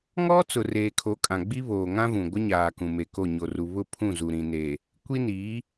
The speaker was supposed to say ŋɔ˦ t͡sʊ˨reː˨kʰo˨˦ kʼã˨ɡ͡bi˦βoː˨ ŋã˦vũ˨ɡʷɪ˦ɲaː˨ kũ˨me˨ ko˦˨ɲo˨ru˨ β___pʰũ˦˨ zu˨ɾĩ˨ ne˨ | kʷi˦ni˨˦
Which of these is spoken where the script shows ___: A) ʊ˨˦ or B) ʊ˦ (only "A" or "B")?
B